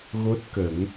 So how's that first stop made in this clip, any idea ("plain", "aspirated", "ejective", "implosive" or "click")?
plain